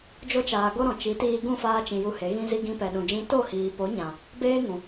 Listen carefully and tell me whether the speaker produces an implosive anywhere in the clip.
yes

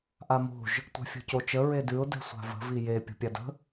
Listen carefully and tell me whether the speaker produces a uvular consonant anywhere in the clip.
no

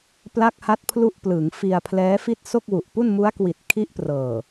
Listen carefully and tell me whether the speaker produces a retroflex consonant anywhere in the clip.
no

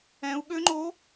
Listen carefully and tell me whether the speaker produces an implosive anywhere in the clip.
yes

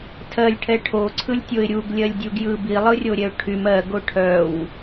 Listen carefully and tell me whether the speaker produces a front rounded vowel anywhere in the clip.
yes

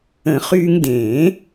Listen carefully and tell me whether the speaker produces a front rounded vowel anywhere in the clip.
yes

